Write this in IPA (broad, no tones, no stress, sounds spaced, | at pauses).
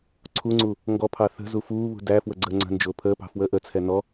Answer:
ǀʰ u ŋ͡ǀ u | ŋ ɡ ɔ pʰ ɑ θ ə̤ z u f uː β ṳ d æ f w ə ɡ͡ǀ əː ŋ͡ǀ ə̤ n d͡ʒ ʊː pʰ əː p ɑ̤ f w əː ʔ ə t͡sʰ ɛ n ɔ